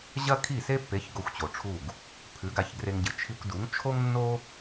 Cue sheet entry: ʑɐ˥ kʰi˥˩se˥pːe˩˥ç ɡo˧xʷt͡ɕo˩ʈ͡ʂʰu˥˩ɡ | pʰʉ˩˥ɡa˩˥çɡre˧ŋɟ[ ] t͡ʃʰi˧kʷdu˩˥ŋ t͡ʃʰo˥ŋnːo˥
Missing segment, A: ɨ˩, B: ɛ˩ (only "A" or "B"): A